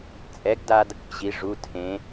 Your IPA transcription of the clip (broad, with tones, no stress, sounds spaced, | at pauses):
t͡sʼ ɛ˨˥ ɡ d a˧ d | ʑ i˩˧ ʐ u˩˧˩ tʰ ẽ˩˧